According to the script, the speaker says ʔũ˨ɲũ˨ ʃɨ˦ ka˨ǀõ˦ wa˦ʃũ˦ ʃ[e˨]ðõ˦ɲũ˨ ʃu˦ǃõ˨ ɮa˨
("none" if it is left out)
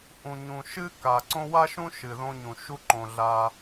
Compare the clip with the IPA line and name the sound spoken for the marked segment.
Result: ɨ˨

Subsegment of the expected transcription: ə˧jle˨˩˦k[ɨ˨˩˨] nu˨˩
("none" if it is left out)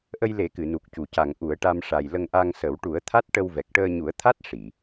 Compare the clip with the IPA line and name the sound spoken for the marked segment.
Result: ɨ˨˩˨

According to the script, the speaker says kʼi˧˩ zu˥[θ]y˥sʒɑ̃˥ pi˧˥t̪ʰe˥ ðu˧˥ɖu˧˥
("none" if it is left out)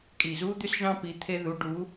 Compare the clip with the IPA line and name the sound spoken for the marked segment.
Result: d̪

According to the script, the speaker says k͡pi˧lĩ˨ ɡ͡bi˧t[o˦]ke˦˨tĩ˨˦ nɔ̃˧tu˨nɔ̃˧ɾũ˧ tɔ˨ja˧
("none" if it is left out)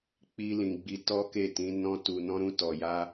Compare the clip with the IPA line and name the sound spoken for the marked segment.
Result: ɔ˦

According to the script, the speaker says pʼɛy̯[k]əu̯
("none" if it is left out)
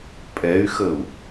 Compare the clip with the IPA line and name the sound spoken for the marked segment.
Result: x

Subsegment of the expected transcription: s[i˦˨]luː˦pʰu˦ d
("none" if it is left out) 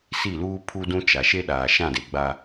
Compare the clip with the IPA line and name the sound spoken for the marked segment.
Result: i˦˨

